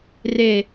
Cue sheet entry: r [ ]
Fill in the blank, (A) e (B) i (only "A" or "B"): A